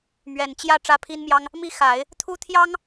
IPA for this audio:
m ɥ ɛ˨˩ n t͡ɕ j ä˥˩ ʈ͡ʂ ä˥ pʰ i˥ n m j ɑ˥ ŋ | m i˥ x a˨˩˦ ɪ̯ | t̪ʰ u˥ t̪ʰ j ɑ˥ ŋ

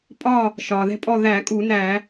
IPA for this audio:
pʼ ɒː˥˨ | ʃ ɒː˩ ð ɛ̤˥˨ pʼ ɔ˥˨ ð æ˧˩˧ kʼ uː˧˩˧ n æː˧˩˧

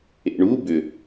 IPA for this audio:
ḛ ɳ u b ʏ

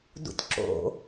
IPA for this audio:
d ṵ tʲ ǁ o̰

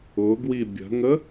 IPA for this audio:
ʊ ɡ w i bʲ ə̤ ŋ ə

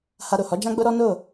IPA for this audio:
h a˧ ɾ o˨ h ɔ˨˦ d͡ʒ ã˦ ɡ͡b o˦ ɾ ɔ˦ n o˦˨

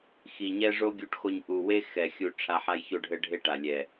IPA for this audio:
x i˨ ɲ ɛ˦ ʐ o˦ ɡʲ u˧ ʈ x o˧ ɲ ʔ u˨ w e˦ x ɛ˨ xʲ u˧ ʈ͡ʂʰ a˧ ħ a˦ j ç o˦ ɖʱ ɘ˦ ɖʱ e˦ ʈ a˨ lʲ ɛ˨

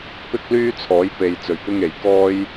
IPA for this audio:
p ɪ˥ k̚ l yː˥ t͡sʰ ɔː˨˥ j p e˨ j t͡s ɵ˨˩ ɥ p ɪ˧ ŋ e˨˩ j k ɔː˥ j

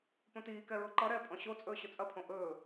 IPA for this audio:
p õ t iː k ɛ ɹ ʊ ǃ ʌ ɾ ɛː pʼ ɔ̃ ɕ o t͡sʼ ɵː ɕ ʊ t͡sʼ ɐ pʰ õ ʔ ɵː

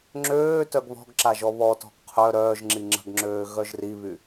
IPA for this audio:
ŋ͡ǁ øː t œ ɡ β ɔ̤ ɡ ǁ a ʒ ɔ β ɔ t ɔ̤ ɡ qʰ œ ɾ œː ʒ ŋ͡ǁ i ŋ͡ǁ ə̤ ɡ ŋ͡ǁ øː ɣ œ ʒ r i β y

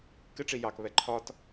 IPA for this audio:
k ɪ ʈ͡ʂ i j ɑ k β ɛ ǃʰ ɒ t

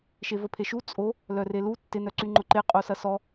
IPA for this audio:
ʃ e v ə pʰ e ʃ u t͡sʼ o | l œ r e l u tː ɪ n œ ǀ y ŋ͡ǃ ʊ ǃ e qʼ o s ɐ s ɔ

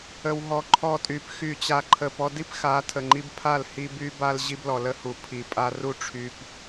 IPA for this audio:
ə˧ w ɦ ɔ˧ ǃʰ ɔ˧ tʼ y˨˦ p x y˧ t͡ɕ a˧ ǃʰ ə˧ p ɔ˦ d i˦ p x a˨˦ tʰ ə˨ ŋ͡ǃ i˧ b pʰ a˦˨ l h i˦ b y˦ b a˦ l ʑ i˧ b l ɔ˨ l ə˧ h u˨ pʰ i˨ pʼ a˧ r u˧ ʈ͡ʂʰ y˨ p

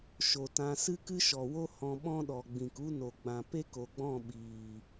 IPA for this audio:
ʃ o˨ t ã˧ s ɨ˦ k ɨ˦ ʃ ɔ˨ w o˦ h ɔ̃˧ ɓ ɔ̃˦ ɗ ɔ˨ ɡ͡b ĩ˨ k u˦ n o˨ ɡ͡b ã˨ p e˦ k o˨ ɡ͡b ɔ̃˦˨ ɓ iː˨

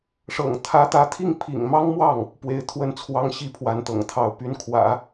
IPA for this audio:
ʂ ɤ̰˨˩ ŋ t̪ʰ ä˧˥ t̪ ä˧˥ t̪ʰ i˥˩ ŋ pʰ ḭ˨˩ ŋ m ɑ˥ ŋ m w ɑ˥˩ ŋ | p w e˧˥ ɪ̯ t̪ʰ w ə˥˩ n t͡sʰ w ɑ˥ ŋ ɕ i˥˩ pʰ w a˧˥ n t̪ ɤ̰˨˩ ŋ t̪ʰ ɑ˧˥ ʊ̯ p y˧˥ n kʰ w ä̰˨˩˦

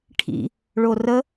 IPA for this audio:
ʈʰ ḭ | ɭ o r ə

